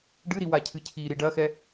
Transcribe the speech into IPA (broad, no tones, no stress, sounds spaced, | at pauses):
ɖ ɨ ɾ i w a cʰ ɨ cʰ i ɾ i ɖ ɐ x ɛ